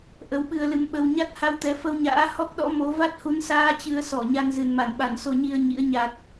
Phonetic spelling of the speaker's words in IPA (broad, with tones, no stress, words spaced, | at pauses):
ʔə˨˦wɓɨ˧ə̯lɨ˧mɓə˧w ɲa˦˥t̚ha˧wt̪ɛ˨˦ fə˧wɲa̰ː˧˥ hɔ˦˥k̚ɗɔ̰˧˥mo˨˦ va˦˥t̚hu˨˦nsaː˧ t͡ɕɨ˧ə̯sɔ˧˩ ɲa˧nzɨ˨˩nma˧˩nɓa˧˩n so˧ɲi˧ə̯ ɲḭ˧˥ə̯ ɲa˨˩t̚